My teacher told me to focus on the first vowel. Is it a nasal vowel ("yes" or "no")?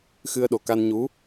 no